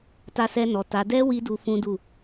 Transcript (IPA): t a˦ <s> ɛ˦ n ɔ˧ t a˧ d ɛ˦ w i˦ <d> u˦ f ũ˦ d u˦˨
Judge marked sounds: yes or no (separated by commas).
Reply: yes, yes